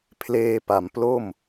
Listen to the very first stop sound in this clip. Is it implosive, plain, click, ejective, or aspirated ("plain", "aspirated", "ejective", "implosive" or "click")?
aspirated